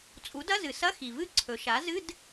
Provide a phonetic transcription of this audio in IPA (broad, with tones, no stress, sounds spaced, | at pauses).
t͡sʼ u˩˥ d ɐ˧˥˧ z ɨ˩ s ɐ˧˥˧ x i˩ v ɨ˦˥ ǀʰ ɵ˩˧ ʃ a˩˥ z ɨ˧˥˧ d